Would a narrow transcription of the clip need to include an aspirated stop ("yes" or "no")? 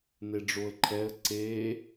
yes